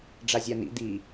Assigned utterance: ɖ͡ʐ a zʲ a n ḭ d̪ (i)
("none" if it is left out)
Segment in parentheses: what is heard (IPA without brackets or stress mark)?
i